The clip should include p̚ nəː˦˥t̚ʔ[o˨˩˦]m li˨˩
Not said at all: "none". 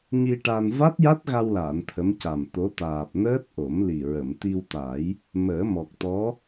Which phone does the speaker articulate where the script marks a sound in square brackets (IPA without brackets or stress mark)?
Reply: o˨˩˦